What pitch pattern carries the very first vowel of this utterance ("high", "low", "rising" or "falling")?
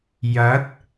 rising